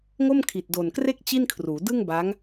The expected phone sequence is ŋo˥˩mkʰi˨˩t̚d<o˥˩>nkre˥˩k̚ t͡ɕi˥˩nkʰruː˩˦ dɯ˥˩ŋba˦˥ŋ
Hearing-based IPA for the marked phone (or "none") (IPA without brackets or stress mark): o˨˩